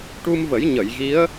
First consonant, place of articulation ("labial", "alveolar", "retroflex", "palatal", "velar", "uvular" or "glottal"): retroflex